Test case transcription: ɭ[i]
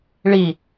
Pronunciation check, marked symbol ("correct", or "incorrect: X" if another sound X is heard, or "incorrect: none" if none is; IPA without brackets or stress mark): correct